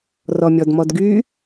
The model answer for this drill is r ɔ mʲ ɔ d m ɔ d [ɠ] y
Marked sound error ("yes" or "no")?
yes